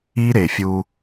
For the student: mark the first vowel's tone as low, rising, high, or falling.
high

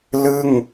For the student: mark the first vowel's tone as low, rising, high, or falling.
falling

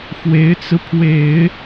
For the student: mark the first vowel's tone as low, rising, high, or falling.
rising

